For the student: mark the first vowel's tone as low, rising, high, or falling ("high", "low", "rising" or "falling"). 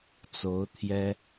rising